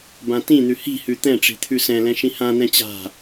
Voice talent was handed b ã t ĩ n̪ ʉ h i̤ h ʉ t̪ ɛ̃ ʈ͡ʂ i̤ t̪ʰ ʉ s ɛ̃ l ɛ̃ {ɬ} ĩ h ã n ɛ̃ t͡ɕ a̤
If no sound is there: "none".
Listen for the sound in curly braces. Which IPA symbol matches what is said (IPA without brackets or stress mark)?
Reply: ʃ